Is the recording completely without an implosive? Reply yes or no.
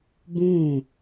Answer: yes